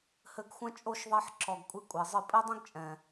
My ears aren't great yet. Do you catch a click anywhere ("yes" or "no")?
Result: yes